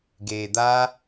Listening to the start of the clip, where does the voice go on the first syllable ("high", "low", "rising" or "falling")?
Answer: low